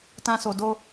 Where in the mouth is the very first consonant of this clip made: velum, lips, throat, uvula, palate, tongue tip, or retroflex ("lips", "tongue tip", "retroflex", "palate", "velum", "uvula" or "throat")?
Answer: tongue tip